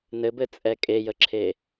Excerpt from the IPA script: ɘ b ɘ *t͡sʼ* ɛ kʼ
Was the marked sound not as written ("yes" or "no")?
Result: no